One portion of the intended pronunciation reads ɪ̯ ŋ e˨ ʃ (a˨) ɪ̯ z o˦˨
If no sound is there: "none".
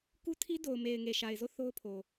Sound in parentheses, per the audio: a˨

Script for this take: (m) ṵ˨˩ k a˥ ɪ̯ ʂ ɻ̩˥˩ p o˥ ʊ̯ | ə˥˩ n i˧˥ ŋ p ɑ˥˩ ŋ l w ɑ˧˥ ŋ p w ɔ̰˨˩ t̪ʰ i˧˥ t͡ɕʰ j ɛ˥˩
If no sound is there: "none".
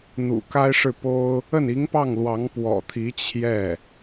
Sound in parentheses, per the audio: n̪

